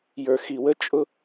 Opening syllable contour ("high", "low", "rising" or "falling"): low